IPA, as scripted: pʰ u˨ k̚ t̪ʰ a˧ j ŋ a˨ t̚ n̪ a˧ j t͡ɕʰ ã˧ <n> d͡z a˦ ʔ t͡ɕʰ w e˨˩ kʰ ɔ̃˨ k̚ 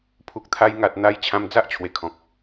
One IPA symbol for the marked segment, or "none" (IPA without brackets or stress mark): m